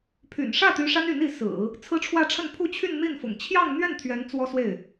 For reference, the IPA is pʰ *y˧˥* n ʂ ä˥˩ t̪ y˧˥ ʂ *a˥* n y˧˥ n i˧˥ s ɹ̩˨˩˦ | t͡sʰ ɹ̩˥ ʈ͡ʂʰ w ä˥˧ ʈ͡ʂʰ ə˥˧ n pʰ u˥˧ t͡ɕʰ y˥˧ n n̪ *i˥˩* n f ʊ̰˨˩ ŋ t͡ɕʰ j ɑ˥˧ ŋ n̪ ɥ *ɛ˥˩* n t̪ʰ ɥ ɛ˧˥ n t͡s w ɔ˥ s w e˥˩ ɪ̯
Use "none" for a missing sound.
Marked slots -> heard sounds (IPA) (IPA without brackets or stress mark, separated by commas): y̰˨˩, a˥, i˥˩, ɛ˥˩